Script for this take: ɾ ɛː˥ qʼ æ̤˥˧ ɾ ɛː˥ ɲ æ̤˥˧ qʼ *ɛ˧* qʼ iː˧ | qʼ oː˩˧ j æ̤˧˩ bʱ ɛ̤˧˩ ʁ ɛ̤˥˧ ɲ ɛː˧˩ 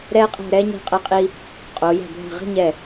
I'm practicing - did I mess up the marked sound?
no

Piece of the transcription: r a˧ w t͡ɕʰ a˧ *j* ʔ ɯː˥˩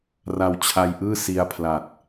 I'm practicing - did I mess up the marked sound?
no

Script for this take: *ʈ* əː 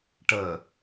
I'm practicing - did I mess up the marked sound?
no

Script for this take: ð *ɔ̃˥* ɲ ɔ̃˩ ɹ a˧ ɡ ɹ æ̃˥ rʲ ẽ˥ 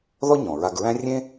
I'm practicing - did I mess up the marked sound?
yes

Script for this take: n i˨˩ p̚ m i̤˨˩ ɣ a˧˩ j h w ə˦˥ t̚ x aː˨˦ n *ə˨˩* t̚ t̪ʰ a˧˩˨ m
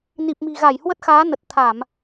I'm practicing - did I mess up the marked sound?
no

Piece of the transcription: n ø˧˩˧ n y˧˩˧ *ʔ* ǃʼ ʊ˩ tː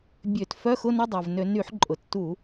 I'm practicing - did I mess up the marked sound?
yes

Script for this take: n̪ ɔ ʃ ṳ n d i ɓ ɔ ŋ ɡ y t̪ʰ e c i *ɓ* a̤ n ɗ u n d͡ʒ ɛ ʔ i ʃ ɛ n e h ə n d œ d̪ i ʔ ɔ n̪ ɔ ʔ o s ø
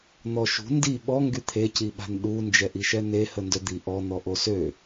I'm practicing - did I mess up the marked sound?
no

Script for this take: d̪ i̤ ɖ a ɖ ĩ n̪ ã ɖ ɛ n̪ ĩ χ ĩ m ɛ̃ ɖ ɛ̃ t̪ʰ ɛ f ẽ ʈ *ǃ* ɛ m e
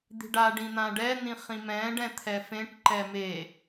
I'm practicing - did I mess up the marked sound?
no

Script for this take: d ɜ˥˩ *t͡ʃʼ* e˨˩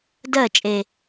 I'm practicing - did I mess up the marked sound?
no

